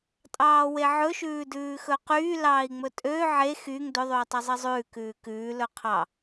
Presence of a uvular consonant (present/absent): present